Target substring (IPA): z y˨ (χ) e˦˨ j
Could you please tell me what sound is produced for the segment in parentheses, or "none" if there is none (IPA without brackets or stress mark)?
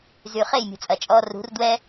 χ